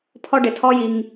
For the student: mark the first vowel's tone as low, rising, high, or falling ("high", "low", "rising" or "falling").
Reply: high